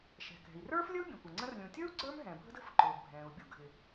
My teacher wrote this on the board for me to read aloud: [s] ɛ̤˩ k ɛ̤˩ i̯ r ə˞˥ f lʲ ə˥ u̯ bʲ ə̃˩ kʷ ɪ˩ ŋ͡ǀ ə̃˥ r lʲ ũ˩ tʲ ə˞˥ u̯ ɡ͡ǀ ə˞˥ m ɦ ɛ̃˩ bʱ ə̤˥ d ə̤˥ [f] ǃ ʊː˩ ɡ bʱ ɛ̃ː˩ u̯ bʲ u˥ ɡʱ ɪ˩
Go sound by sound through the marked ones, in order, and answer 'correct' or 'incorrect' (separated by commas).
incorrect, correct